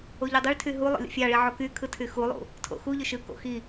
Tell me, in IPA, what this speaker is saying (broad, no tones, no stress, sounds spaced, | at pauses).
o ʎ y dˤ ø ɭ tʰ y ɦ u lˠ o̰ lʲ ṵ fʲ ɑ ɭ i ʕ o k y kʰ ɯ tʰ y x u lˠ ṵ | tʰ o̰ x u ʎ ø ʃ ɯ k o̰ x i